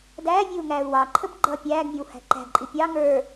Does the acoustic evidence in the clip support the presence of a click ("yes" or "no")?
yes